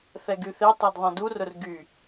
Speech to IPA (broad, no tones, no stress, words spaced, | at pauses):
θɛɡyθetˤɛd ðˤɛ̃durʊr ɡy